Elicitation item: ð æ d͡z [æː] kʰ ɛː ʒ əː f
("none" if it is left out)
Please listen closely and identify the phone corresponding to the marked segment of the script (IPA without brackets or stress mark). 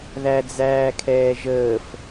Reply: æː